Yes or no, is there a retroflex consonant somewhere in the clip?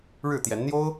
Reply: yes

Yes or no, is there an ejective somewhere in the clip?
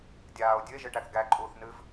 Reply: yes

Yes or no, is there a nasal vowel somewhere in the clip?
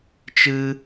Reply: no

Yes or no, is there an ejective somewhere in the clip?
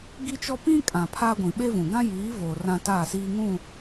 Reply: yes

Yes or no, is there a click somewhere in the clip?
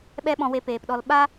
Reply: no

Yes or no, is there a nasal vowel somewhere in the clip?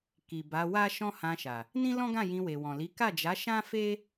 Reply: yes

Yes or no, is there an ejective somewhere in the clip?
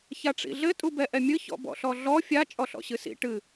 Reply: yes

